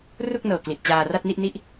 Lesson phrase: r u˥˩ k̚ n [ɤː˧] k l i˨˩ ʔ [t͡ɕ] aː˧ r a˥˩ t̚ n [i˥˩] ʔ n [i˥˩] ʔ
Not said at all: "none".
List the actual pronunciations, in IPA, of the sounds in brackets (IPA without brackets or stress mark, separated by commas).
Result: ɤː˨˩, t͡ɕ, i˥˩, i˥˩